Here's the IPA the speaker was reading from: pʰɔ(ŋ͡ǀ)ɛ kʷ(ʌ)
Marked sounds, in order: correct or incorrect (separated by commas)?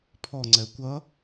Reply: correct, correct